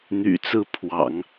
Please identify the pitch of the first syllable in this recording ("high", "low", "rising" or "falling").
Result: low